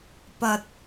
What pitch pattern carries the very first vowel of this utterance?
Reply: low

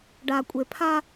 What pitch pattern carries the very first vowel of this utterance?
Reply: low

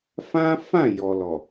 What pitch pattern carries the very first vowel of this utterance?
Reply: high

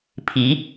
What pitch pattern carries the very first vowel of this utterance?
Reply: rising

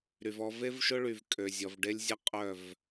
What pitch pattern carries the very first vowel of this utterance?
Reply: low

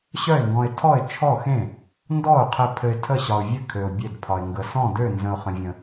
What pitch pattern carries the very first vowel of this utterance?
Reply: falling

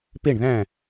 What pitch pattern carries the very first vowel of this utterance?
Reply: falling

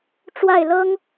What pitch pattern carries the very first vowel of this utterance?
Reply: falling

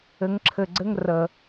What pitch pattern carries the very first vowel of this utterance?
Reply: rising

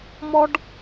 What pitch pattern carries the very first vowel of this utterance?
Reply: high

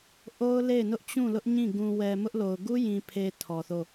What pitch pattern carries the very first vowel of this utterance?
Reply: high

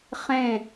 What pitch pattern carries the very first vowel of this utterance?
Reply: falling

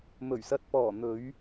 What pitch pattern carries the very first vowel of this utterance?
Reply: low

